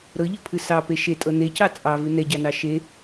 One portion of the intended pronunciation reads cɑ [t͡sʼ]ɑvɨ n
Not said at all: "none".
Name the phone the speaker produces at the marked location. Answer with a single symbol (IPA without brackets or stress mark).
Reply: t͡sʼ